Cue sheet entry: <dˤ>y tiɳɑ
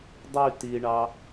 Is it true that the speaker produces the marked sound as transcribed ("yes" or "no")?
yes